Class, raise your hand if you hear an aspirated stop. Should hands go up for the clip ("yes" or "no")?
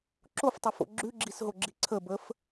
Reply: yes